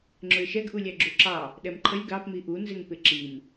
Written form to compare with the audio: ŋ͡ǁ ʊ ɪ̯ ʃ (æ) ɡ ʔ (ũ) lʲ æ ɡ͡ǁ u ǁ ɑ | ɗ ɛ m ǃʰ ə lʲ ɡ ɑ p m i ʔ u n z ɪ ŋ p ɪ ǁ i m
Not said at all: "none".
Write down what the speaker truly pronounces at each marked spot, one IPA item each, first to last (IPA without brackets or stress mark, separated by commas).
ɛ, u